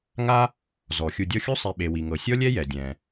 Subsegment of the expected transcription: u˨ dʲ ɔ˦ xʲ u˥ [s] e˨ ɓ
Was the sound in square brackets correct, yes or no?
no